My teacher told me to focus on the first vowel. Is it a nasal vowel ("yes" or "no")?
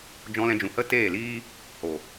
yes